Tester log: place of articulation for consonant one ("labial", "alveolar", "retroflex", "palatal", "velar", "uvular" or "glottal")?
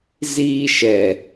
alveolar